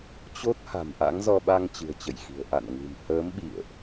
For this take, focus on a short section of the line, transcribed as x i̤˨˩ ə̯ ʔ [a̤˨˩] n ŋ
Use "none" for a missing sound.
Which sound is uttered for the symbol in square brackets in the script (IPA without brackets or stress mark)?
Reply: a̰˧˨